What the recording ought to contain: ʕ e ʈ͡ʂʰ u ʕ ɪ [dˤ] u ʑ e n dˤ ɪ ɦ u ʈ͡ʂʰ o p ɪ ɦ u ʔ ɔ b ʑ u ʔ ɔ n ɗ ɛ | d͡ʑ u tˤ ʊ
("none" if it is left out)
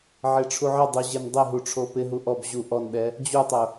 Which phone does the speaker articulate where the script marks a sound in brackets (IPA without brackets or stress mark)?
dˤ